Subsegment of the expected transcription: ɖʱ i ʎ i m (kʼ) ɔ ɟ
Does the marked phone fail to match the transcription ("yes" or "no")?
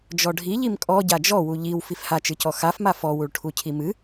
no